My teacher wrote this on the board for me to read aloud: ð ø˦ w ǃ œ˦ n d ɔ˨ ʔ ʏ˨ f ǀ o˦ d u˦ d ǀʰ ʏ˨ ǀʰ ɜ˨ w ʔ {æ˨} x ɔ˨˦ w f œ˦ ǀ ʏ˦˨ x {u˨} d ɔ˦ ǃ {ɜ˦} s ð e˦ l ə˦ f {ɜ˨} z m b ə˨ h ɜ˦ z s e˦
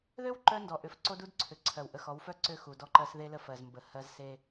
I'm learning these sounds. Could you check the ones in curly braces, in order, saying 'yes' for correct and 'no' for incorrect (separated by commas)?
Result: no, yes, yes, yes